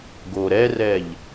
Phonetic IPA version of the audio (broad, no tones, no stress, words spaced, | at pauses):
ɡo ɾɛrɛʎ